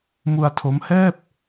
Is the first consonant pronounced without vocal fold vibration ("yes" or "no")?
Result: no